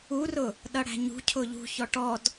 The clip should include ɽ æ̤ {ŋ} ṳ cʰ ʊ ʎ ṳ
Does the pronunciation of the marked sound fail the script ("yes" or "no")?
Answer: yes